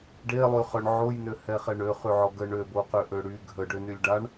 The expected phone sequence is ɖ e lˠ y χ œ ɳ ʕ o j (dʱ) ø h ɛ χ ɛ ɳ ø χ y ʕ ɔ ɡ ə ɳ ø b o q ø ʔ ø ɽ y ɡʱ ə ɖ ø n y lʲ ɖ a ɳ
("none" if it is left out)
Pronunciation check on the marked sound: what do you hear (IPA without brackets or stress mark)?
n